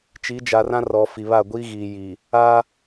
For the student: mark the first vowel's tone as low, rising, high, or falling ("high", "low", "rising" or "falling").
rising